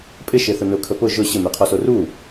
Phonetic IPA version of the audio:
pʼɪ ʃeθʊnʊkʰə pʊ ʒʊ ɕɪmeqʰɔso ru

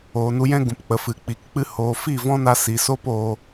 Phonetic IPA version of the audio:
oː˨nu˧jɛ̃˦ɡũ˨p k͡pə˨fɨ˨ k͡pi˨kk͡pɨ˧ hoː˨fi˦˨ vɔ̃˦na˧ si˨so˦poː˧

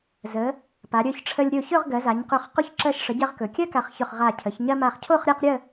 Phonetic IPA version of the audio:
zə˩˧ | pa˩˧ ɾʲɵ˧ç ʈ͡ʂʰə˧lʲɾʲo˧˩çɵ˥˧ʁ ɡɜ˩˧za˩˧ɲqɵ˧˩χ qo˧çǁɜ˧˩ʃʂə˩˧ ɟɜ˧ʁkɵ˩˧kʲɜ˥ ka˧˩χçɵ˧˩χʁa˧˩ cʰə˩˧ç ɲɜ˧ma˧˩χ cʰo˥˧χɾʲa˥˧q ɾʲə˥˧

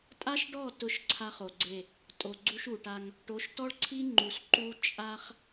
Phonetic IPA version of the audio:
tʼa˦ʃɖɔ˦˨ tʊ˦˨ʃǀʰa˦χ o˨ɡ͡ǀe˦˨ | tʼo˨ɡ͡ǀu˦ʃu˨ʈa˦ŋ | ʈo˨˦ʃtɔ˦ɭǀʰi˦ ŋ͡ǃu˨s ǃu˦ t͡ʃʼa˦χ

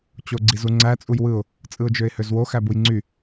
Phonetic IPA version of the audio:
t͡ɕoɡ͡ǀizuŋ͡ǀæ t͡sʼujwɯʊ̯ | t͡sʼɯʊ̯d͡ʒøɪ̯høzwo xæbujŋ͡ǀy

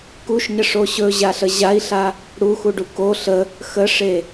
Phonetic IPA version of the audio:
kuʃɲəʂo ɕɵʑaɬə ʑai̯ɬa | ɽuxuɖu ko ɬə | xəʂe

